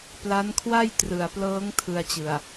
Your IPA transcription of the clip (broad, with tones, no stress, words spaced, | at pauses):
pla˦˥nkʰwa˥˩jtrɯ˨˩a̯plɤː˦˥ŋ tʰɯ˧a̯t͡ɕɯ˨˩a̯